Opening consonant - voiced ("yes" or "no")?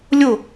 yes